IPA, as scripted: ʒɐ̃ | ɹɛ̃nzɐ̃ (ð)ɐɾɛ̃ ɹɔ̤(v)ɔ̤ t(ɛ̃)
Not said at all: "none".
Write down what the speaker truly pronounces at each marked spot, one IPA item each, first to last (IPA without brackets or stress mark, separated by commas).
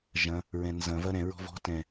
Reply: v, v, ɛ̃